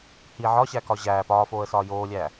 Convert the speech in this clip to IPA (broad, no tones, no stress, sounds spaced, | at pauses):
h i ʕ ɒ ɕ æ k ɒ ʑ æ p ɒː f oː ə̯ s ɒː j oː lʲ æː